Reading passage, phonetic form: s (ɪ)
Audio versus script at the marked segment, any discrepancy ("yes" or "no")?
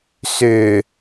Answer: yes